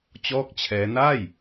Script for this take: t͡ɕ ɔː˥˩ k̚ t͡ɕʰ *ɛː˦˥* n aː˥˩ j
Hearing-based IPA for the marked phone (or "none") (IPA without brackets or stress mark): ɛː˦˥